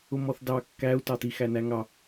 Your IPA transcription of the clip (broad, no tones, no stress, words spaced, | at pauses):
ʊmɔθdɑ kːæu̯tɑti xænæŋɑ